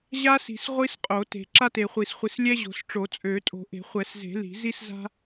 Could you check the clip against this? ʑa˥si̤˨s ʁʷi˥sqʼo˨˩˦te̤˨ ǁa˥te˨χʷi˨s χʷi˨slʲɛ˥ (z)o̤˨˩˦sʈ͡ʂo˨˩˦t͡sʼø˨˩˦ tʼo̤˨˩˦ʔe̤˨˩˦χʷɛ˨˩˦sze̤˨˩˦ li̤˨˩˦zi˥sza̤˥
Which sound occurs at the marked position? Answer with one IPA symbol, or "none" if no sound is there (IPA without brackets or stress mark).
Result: ʑ